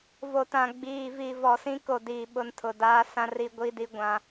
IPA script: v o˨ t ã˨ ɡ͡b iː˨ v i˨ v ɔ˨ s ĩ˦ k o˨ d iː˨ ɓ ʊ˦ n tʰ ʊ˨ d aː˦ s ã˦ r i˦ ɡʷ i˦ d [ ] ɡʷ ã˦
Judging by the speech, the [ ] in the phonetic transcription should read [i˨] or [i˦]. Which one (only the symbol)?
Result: i˦